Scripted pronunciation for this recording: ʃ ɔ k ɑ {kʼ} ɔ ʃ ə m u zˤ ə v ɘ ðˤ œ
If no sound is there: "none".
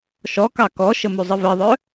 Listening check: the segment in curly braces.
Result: k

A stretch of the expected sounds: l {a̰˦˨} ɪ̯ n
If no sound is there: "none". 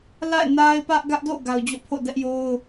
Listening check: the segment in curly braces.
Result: a̰˦˨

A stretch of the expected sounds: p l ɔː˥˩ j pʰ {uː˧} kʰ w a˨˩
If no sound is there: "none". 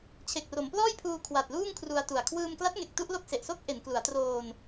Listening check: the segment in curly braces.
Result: uː˧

